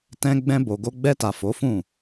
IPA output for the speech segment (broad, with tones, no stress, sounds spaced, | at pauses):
t ɛ̃˧ ɡ͡b ɛ̃˧ b o˨ ɡ o˧ ɡ͡b ɛ˧ t a˨ f o˨˦ f ũ˦˨